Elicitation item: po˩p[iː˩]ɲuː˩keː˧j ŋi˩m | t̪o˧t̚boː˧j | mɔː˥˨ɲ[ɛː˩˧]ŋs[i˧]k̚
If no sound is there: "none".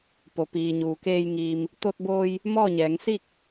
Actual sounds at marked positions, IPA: iː˩, ɛː˩˧, i˥˨

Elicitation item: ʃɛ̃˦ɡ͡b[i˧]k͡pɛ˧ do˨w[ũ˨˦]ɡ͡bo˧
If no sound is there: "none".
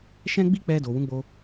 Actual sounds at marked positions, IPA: i˦, ũ˨˦

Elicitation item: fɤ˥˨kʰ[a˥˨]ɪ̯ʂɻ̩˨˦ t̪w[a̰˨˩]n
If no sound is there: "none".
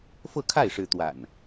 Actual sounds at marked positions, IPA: a˥˨, a̰˨˩

